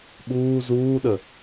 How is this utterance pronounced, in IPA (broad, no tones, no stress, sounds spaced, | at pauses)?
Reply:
ɓ uː z uː ɗ ə